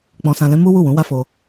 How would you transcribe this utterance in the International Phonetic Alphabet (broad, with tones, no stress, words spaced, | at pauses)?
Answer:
k͡pɔ̃˧sã˧lɛ̃˦ mu˦wu˦˨wũ˨˦ wa˦fo˧